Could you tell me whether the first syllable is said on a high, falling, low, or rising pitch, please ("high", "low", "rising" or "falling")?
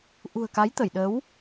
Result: low